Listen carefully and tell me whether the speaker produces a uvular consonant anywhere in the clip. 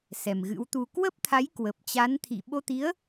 no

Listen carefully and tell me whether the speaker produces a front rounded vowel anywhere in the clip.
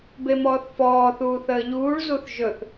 no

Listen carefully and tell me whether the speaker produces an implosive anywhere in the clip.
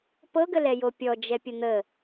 no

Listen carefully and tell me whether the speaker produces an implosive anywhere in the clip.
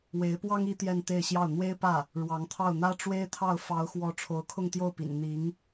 no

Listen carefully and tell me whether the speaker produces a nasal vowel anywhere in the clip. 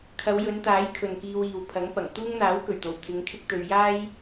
no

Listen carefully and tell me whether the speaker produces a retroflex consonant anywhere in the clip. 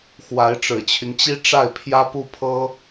yes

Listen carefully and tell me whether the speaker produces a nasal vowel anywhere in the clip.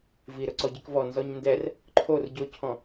yes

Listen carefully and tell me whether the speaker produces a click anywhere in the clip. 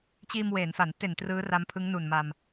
no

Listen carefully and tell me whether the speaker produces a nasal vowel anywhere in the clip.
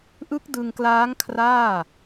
no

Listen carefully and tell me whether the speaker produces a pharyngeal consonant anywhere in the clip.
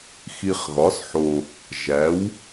yes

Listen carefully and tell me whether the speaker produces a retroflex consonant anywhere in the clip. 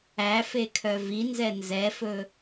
no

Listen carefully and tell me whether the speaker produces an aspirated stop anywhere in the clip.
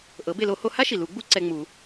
no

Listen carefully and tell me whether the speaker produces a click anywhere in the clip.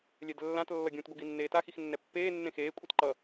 yes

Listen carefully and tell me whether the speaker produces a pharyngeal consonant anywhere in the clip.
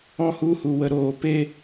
no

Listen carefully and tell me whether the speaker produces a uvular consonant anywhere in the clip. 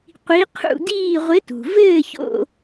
yes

